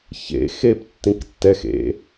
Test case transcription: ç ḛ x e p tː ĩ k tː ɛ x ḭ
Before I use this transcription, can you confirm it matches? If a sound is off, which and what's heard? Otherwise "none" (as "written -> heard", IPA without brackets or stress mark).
ḭ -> ḛ